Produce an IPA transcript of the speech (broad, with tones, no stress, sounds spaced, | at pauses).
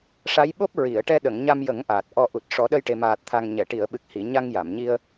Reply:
ʂ a˧˥ j ɓ o˦˥ p̚ ɹ i˨˩˨ ə̯ ʈ ɛ˧ ɗ ə˨˩˨ ŋ ɲ a˧ m j ə˨˩˦ ŋ ʔ aː˨˩ t̚ ʔ ɔ˧ ʔ u˨˩ t̚ ʂ ɔ˨˩˦ ɗ ə˧ j ʈ e˨˩ m aː˨˩ t̚ t̪ʰ a˨˩ ŋ ɲ ɛ˨˩˨ ʈ i˨˩˨ ə̯ ɓ ɨ˨˩ k̚ h i˨˩˨ ɲ a˧ ŋ j a˨˩˨ m ɲ i˧ ə̯